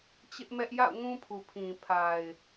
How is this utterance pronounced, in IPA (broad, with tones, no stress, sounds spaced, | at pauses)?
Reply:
t͡ɕ ɪ˦ ʔ m ɛ˦ ʔ j a̰˦˨ ʊ̯ ŋ ũ˦ pʰ u˨ pʰ ĩ˨ pʰ a˨ ɪ̯